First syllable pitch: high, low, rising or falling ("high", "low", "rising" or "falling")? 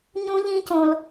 high